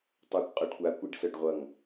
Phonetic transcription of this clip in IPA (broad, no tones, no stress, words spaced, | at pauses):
tˤʌːkʷqʼœɖkʷa kʷiɖsœɖʁʷʌŋ